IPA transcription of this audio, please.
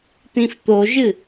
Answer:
t̪ ĩ f t̪ o ʒ ɨ

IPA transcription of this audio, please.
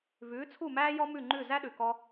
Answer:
v ʉː˩˥ t͡sʰ u˥˩ m æː˥ j ɔ˥ m ʉ˥˩ ŋ͡ǃ ʉ˥˩ z æ˥ ɗ ʉ˩ k ɔ˧

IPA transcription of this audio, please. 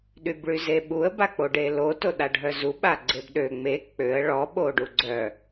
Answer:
ɗ y b ɭ y z e ɓ u ə̯ b a k͡p o ɖ e l o t o ɗ a ɖʱ œ z u ɓ a ɡ͡ǀ e b ɗ ø ŋ͡m e k͡p ø ə̯ ɭ ɔ ɓ o ɖ u ɡ͡ǀ œ

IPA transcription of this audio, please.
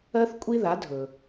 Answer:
ɜ˥ θ kʷʼ i˥ ð a˩˥ dʱ ɵ˩

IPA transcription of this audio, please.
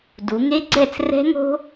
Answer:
d u˩˧ ŋ e˦˥ ɡ͡ǀ ɛ˥˩ t͡s r ɛ̤˦˥ ŋ o̤˦˥

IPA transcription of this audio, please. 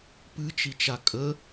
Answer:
p ɨ t͡ʃ i t͡ʃ a kʼ ə

